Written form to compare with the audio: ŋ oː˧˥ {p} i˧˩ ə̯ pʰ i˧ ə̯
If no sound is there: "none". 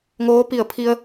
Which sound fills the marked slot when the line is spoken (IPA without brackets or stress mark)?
p